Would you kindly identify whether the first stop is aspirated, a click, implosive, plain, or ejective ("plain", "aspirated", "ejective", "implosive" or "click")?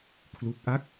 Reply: aspirated